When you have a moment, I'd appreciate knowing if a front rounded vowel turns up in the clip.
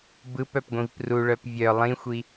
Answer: yes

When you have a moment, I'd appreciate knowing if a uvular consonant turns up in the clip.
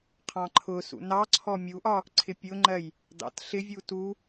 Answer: yes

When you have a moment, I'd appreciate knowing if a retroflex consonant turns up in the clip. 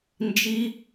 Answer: no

